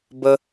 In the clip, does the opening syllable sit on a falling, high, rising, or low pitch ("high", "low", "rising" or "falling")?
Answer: high